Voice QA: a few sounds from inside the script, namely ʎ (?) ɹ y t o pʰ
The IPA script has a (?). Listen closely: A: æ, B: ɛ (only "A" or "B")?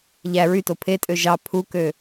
A